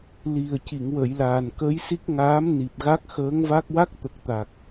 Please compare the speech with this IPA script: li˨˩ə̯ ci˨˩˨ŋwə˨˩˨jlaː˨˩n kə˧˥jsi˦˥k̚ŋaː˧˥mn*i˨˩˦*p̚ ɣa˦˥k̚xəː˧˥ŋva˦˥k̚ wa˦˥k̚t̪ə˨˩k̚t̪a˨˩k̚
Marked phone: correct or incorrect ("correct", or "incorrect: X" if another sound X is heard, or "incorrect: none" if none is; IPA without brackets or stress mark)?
incorrect: i˨˩